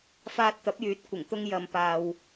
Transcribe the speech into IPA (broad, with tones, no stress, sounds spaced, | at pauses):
f aː˧ t̚ t̪ ɐ˨˥ p̚ j yː˨˥ t̚ kʷ ɪ˨˩ ŋ t̪ ʊ˥ ŋ j ɐ˧ m p aː˧ w